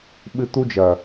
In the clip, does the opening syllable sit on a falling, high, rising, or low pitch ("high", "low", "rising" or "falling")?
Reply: high